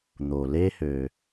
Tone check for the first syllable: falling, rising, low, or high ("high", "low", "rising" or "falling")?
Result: low